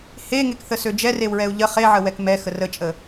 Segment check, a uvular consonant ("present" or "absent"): present